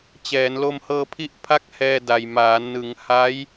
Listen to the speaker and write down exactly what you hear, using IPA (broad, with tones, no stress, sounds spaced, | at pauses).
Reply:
t͡ɕ ɛː˩˦ n l o˧ m h ɤː˧ pʰ i˦˥ ʔ pʰ a˦˥ k̚ h ɛː˧ d a˨˩ j m aː˩˦ n ɯ˩˦ ŋ h a˦˥ j